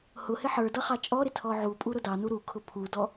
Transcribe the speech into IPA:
h ʊ h ɪ ħ ə˞ d ʌ χ ɑ t͡ʃʼ ɔ ɾ ɪ tʰ ɔ ʕ u pʼ u ɾ ʊ d ɑ n u ɾ u kʰ ʊ pʰ u d ɔ

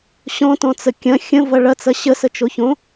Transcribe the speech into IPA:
ɕ ɔ̃ t ɔ̃ t͡s ə kʲ ɐ̃ xʲ ə̃ v ɐ ɭ ɐ t͡s ɐ ɕ ə s ə t͡ʃ o ç õ

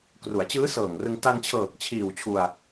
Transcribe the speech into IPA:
k r u˩˦ a̯ t͡ɕ ɯː˦˥ s ɤː˨˩ ŋ r ɯ˧ ŋ t a˧ n t͡ɕʰ ɤː˨˩ k̚ t͡ɕʰ iː˨˩ w t͡ɕʰ u˧ a̯

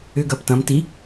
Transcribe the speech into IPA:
ʏ ɡ ɐː p t ɐ̃ m t i

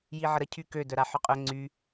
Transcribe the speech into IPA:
j i ʕ ə ɾ ə cʰ y k ø d œ ɾ a ħ œ qʼ œ ŋ͡ǀ y

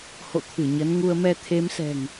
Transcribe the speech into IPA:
h o̰˧˨ t̪ʰ ɨ˧˩ ɲ ə˨˦ n ŋ u˧ ə̯ m ɛ˧ t̪ʰ e˨˦ m s ɛ̤˨˩ ŋ

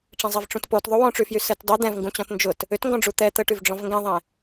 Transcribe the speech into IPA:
ʈ͡ʂ ɛ̃ zˤ ɛ v ʈ͡ʂ ũ t p o t ðˤ u w ɔ̃ ʈ͡ʂ y f j y s ɛ t dˤ ʊ d̪ ɛ̃ v ŋ ɡ ũ t͡ɕ ɔ̃ t n d͡ʒ ʊ t | ʏ t ŋ ɡ ɔ̃ ɖ͡ʐ u t̪ ɛ t̪ ə ʈ y v ɖ͡ʐ ɔ̃ v ŋ ɡ ɛ̃ ðˤ ɛ̃

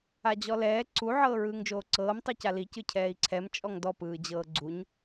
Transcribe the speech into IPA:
a d͡ʑ ɔ l ɛː ǀ u ʕ ɤː ɹ ɯː ŋ d͡ʒ oː ǀ ɤː m tˤ ɯ c a l i c ɯ cʰ ɛː i̯ ǀʰ ɛ m t͡ʃʼ ɔ ŋ d ɔ p ɯː d͡ʑ ɤː ɡ͡ǀ u ɲ

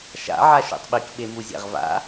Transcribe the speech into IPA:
ʃ a̰ ʕ a ʃ ṵ tˤ ɓ i k ɓ e m u zʲ a̰ ʁ v a̰

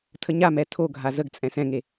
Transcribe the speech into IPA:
tʰ ə ɲ a m ɛ tʰ o ɡʱ a z ə ɡ t͡sʼ ɛ̃ s ɛ̃ ŋ e

